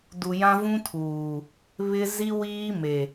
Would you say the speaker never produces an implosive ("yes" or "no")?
yes